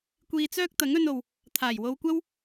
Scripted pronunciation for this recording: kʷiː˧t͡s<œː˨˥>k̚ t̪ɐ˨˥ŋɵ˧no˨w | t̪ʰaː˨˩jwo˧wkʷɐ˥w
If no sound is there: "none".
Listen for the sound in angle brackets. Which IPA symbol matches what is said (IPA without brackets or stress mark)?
œː˥